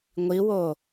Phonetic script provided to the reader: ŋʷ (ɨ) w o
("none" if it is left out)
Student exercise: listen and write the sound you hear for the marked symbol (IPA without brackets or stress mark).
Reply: i